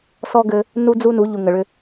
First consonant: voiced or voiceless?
voiceless